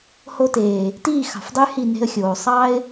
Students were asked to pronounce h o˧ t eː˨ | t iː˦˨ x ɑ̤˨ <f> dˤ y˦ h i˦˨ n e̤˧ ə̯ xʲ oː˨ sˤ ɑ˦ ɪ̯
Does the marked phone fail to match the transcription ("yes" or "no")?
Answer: no